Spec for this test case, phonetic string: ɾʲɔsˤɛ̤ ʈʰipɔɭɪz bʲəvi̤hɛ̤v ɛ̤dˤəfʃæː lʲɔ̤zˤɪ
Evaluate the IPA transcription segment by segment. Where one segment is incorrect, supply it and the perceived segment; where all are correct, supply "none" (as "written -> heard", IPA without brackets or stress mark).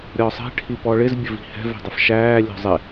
none